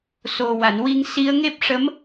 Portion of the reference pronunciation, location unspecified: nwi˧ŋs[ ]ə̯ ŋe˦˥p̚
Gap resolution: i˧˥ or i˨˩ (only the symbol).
i˧˥